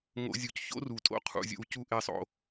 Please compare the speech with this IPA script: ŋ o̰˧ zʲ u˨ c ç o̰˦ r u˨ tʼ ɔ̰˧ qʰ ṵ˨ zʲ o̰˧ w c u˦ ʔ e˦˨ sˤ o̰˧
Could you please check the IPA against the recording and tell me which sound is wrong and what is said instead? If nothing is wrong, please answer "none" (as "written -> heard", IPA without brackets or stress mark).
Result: ɔ̰˧ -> o̰˧